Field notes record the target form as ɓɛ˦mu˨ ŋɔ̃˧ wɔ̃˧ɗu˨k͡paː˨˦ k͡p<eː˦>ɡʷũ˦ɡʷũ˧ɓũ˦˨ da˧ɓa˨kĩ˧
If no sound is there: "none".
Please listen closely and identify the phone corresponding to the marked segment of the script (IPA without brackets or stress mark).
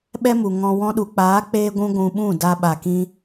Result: eː˦